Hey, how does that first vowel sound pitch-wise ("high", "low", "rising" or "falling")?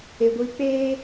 high